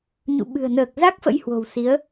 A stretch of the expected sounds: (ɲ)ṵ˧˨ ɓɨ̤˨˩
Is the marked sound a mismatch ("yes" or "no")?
no